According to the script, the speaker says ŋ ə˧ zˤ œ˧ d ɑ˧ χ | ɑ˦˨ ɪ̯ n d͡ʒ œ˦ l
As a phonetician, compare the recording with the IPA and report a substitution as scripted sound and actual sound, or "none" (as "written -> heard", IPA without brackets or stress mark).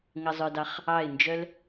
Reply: none